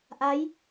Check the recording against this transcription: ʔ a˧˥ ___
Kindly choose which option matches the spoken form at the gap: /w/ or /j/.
j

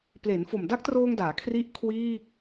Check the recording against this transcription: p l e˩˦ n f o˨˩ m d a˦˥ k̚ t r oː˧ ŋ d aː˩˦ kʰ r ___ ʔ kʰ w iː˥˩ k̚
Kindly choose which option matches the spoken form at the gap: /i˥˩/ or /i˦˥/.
i˦˥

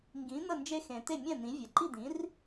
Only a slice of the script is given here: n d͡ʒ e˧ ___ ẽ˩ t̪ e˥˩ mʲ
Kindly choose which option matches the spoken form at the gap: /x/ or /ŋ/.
x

